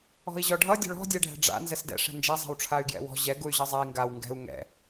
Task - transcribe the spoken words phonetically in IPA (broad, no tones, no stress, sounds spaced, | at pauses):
ɔ̤ i̯ ʑ ɔ ɖʱ ʌ dʲ ɔ̤ ɭ ɔ̤ dʲ ɛ ɖʱ ɛ̤ ɖ͡ʐ a̰ n z ɛ s d ɛ̰ ʂ ɛ̤ n d͡ʒ a zˤ ɛ̤ w ʈ͡ʂʰ a y̯ ɡ j ɛ̰ w ɔ̤ ʑ ɛ ɡ u y̯ ʑ ʌ zˤ a i̯ ŋ ɡ a w ŋ ɡ ɛ̤ u̯ ŋ ɛ̰